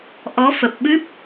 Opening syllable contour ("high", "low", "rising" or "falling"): rising